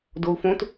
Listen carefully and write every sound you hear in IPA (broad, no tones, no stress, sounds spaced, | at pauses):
d o u̯ f õ t